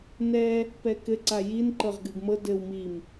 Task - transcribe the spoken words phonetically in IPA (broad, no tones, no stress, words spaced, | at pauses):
nɛ | pɛkɘ ǀajin ǃɤʁɡɨɡmɤ dɘw mim